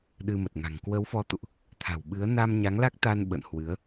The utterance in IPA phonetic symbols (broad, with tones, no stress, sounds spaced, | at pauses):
ɗ ɨ˧ m ə˨˩ t̚ ŋ a̤˨˩ ŋ k w ə˨˦ w f ɔ˨˦ t̪ ṵ˧˨ ʔ | t̪ʰ a̤˨˩ w ɓ ɨ˨˦ ə̯ n a˧ m ɲ a˨˦ ŋ l a˦˥ k̚ t̪ a˧ n ɓ ə̰˧˨ n h w ɨ˨˦ ə̯